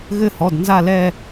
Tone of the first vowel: falling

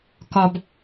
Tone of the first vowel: low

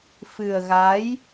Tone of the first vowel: low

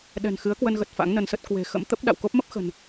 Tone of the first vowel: low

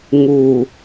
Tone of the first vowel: low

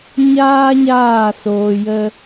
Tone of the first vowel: high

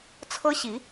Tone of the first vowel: high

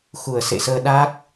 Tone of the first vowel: low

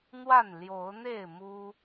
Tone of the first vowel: falling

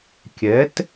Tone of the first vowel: rising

